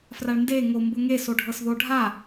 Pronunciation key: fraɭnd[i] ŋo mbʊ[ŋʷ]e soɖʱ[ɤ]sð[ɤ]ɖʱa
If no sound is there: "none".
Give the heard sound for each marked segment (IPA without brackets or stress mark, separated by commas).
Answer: e, ŋ, ɤ, o